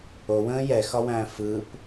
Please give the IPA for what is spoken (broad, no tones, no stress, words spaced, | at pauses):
owə̃ː jɛxɒwæ̃ː fɯp